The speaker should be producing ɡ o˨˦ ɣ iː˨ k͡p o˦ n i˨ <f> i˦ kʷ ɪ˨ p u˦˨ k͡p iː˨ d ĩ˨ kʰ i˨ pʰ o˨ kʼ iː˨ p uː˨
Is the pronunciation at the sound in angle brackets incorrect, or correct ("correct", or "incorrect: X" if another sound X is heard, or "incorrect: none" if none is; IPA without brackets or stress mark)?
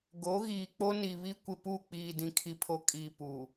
incorrect: β